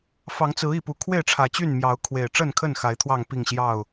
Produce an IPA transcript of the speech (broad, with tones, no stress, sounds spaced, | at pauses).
f ɑ˨˦ ŋ t͡s ɹ̩˨˦ i˨˩ p u˨˦ kʰ w e˥˨ ɪ̯ ʈ͡ʂʰ ä˨˩ t͡ɕ y˥˨ n m j ɑ˨˦ ʊ̯ kʰ w e˨˩ ɪ̯ ʈ͡ʂ ə˥˨ n kʰ ə˥˨ n x a˨˦ ɪ̯ t̪ʰ w ɑ˥˨ ŋ p i˥˨ ŋ ɕ j ɑ˥˨ ʊ̯